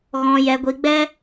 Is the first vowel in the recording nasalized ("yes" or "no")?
yes